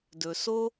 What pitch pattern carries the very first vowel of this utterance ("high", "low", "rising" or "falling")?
low